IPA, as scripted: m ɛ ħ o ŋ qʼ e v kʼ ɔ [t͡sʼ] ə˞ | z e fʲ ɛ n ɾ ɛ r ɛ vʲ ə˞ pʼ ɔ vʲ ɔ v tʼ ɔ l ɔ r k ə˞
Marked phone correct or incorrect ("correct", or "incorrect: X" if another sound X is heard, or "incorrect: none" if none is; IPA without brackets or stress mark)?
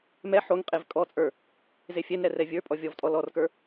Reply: correct